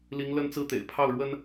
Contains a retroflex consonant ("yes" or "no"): yes